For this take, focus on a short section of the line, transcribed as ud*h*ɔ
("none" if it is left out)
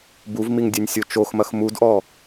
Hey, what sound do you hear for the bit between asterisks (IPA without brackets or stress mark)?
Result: ʔ